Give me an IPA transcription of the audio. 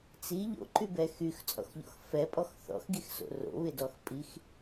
t͡s i ʎ o̰ ǃ y b ɛ x y x t͡sʼ ɔ̰ x ʎ ɔ̰ x f ɛ pʼ ɔ x θ ɔ̰ x ɡ i x s o̰ r o̰ β ɪ d ɔ x pʼ i x

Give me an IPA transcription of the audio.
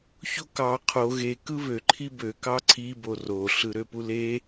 ç o k ɑ qʰ o ɣ e k ɯ β ø ǃʰ i b ø k ɑ ǀʰ i b o r o ɬ ɯ ɾ ø p u l e

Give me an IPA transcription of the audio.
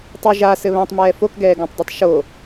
tˤ u ʒ a s ɘ β ã tˤ m ɛː f o k ɡ ɛː ɡ õ tˤ dˤ ɛ tˤ ʃ o

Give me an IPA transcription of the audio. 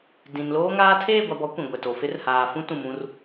d ĩ˨ n l oː˦ ŋ aː˦ tʰ eː˦˨ ɡʷ a˨ b ɔ˨˦ kʷ ĩ˨ ɡʷ ɛ˨ t o˨ f ɪ˦ r h aː˨ f ũ˦ t ũ˨ m ũ˦ r

